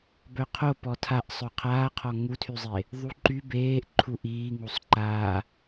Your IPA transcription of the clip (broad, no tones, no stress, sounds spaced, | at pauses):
b œ qʰ o p ɔ tʰ a ʔ sˤ œ qʰ aː qʰ ɔ ŋ u tʰ y zˤ e | ðˤ u ǃ y b eː ʔ ǃʰ u ʔ iː ŋ u sˤ ǃ aː